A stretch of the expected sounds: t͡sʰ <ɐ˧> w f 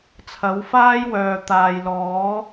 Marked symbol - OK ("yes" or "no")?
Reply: no